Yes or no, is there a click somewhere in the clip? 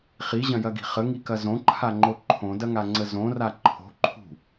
yes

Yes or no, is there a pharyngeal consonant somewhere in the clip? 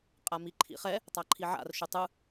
yes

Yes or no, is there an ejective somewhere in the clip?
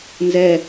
no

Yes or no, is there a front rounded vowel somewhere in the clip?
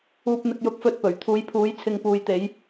no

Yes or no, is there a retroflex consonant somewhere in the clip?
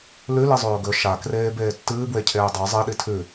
no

